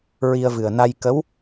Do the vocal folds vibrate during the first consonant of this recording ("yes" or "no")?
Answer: yes